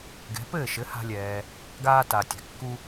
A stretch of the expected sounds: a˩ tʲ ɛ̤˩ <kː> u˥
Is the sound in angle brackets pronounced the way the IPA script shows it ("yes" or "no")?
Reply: yes